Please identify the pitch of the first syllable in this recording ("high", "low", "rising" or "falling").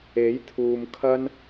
rising